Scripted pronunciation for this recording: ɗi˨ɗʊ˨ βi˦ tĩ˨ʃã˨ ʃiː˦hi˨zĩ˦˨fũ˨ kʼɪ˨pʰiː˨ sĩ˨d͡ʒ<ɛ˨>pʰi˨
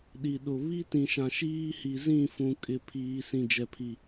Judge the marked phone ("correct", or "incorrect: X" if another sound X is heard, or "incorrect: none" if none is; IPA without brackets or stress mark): correct